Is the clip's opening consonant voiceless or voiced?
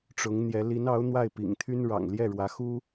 voiceless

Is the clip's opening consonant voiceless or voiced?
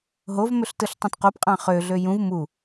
voiced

